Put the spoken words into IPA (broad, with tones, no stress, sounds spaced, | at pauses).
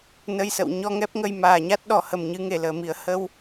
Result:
n ə˧ j s ə̰˧˨ w ɲ ɔ˧ ŋ ɛ˦˥ p̚ ŋ ə˧ j m aː˨˩ ɲ a˦˥ t̚ ɗ ɔ˧˩ h ə˨˩ m ɲ ɨ˨˦ ŋ e˧˩ l əː˧˩ m i˧˩ ə̯ h ə˧ w